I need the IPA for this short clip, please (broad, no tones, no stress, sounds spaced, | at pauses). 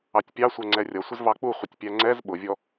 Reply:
ɑ tʲ pʲ ɑ sʷ ɜ ŋ͡ǀ ɛ rʲ ʌ sʷ ɪ z v ɑ k͡p u χʷ ɪ tʲ pʲ æ ŋ͡ǀ ɛ z ɓ ʊ vʲ ɔ